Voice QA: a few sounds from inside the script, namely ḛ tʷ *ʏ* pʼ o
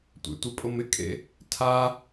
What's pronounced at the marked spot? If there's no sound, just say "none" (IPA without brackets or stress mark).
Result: ɪ